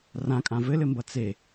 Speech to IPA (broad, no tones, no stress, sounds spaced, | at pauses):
r ã kʼ ã v ɘ l ɘ m b ʌ t͡s e